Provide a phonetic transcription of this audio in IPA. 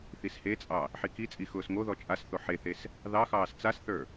θ i s h e t͡sʼ ɑ | ħ i k i t͡sʼ i x ʊː s ŋ o ð ɔ t͡ʃʼ a s θ o ħ e θ e s | ð ɑ x ɑː s t͡s a s θ ə˞

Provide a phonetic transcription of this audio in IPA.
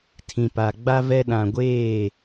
tʰ ĩ˨ p a˨ ɡ͡b a˦ v ɛ˦ ɗ ã˨ ɡʷ eː˦˨

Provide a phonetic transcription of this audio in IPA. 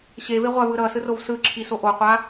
ɕ e v e ʁʷ a v ɯ ɾ ʌ s ɯ r o v s ɯ ǁʰ i s o ʔ o qʷ a

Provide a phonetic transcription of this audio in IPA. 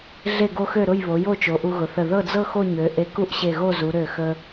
ɮ e˥˧ ɡ o˥ x ø˥˧ ɾ ʊ˥˧ j β o˩˧ j o˥˧ t͡ʃ o˩˧ ʔ u˧ ɣ ʊ˩˧ θ ə˧˩ ð ɤ˥˧ d͡z ɤ˥˧ x o˥˧ ɲ ø˩˧ ʔ e˧ k u˥˧ ʔ ɕ e˧˩ ɣ o˥˧ z u˩˧ ɾ ø˧˩ x ə˧

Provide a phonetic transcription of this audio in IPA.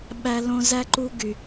ɓ æ˥ l õ˥ z æ˥ ǃ u˥ ɡ y˧

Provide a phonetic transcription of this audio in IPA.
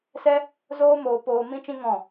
s ɛ˦ | z oː˦ m oː˧ p oː˧ m ĩ˦ t͡ʃ ĩ˦ ŋ ɔ̃˦˨

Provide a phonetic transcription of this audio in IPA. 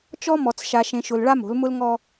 t͡ʃ ɔ˦ m ɔ˨ t͡s ʃ a˨ ʃ ẽ˨ ʃ ʊ˨ l ɭ a˦ m o̤˨˦ l m ʊ˦ l ŋ ɔ˦

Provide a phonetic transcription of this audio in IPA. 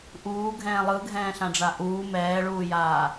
ʔ uː ɡʱ ɛ̃ː lˠ ɯ ɡʱ ɛ̃ː ɬ ã ɖ͡ʐ a ʔ uː m ɛː ɭ uː j aː

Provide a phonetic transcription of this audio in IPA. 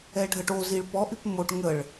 ɛ ɖʱ ə ʈ o z i ɭ p ɔ ʔ y p m o ʈ ŋ ə ɭ

